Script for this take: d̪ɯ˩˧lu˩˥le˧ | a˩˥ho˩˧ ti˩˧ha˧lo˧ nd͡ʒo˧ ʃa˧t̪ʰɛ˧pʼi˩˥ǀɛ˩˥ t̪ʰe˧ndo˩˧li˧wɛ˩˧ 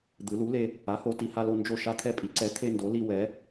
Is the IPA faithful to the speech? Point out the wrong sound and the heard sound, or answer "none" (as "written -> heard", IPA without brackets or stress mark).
none